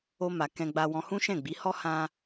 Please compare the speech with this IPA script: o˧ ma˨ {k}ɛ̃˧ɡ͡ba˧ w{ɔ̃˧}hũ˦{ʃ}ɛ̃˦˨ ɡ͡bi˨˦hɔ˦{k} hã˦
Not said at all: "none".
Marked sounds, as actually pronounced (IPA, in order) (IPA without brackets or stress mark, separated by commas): k, ɔ̃˧, ʃ, none